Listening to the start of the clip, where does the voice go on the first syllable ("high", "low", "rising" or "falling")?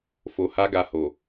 low